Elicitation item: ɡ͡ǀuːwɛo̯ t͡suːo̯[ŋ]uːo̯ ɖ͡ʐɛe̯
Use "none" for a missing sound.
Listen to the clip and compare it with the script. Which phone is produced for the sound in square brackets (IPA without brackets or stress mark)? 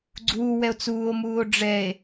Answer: m